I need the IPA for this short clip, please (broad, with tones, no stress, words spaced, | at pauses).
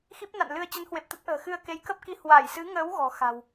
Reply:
xi˦˥p̚na̰˧˨n lɨ˧ə̯ t͡ɕə˨˦nhwe˨˩p̚ t̪ə˦˥t̚ʔə̤ː˨˩ xɨ˧ə̯ke˨˦jkə˦˥p̚ki˧ hwa˧˩jsɨ˨˦ŋəː˨˦w ɣɔ̤˨˩xa̤˨˩w